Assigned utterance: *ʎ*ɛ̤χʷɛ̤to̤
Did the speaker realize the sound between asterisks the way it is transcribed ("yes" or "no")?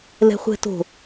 no